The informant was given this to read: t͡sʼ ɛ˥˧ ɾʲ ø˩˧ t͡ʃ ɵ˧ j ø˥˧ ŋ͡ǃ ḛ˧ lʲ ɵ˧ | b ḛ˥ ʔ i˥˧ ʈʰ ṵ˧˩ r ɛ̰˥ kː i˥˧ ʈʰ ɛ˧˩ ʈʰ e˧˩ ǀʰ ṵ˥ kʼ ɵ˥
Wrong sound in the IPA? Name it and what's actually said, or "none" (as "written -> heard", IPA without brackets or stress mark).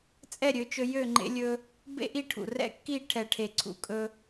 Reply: none